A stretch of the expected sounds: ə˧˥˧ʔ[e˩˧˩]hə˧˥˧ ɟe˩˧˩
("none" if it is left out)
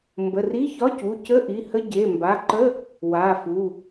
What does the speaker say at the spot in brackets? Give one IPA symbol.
i˩˧˩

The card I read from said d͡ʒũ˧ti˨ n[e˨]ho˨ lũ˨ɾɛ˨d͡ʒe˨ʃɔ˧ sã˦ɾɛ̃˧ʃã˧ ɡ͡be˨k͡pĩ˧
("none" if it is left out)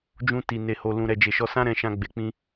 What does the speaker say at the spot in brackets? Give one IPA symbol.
e˨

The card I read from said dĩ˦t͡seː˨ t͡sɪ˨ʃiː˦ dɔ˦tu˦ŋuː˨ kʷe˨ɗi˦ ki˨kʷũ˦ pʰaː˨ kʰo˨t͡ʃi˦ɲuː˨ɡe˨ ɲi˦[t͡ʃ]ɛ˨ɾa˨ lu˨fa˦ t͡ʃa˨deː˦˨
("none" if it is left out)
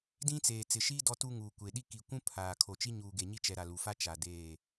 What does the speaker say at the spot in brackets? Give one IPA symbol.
t͡ʃ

